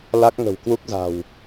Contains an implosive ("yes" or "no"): no